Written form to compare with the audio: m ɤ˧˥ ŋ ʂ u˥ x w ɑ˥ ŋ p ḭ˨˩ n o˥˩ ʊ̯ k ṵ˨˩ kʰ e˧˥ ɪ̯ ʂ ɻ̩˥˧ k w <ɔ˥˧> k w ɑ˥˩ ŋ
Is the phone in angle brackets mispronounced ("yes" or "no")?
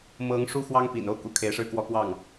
no